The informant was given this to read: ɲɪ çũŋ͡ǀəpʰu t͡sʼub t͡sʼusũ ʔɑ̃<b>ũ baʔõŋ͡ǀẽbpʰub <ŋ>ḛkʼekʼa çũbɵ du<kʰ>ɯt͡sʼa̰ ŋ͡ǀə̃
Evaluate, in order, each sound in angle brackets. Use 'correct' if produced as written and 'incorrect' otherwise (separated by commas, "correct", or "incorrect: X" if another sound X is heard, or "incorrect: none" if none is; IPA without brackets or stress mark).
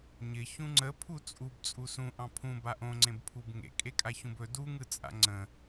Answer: incorrect: pʰ, correct, incorrect: ŋ